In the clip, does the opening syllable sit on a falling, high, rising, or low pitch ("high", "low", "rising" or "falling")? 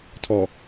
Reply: low